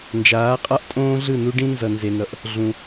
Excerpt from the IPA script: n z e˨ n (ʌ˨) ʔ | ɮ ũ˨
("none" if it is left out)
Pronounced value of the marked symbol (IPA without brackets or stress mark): ʌ˨